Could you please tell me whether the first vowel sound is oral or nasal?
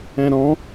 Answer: nasal